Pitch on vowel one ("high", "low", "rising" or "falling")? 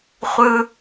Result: high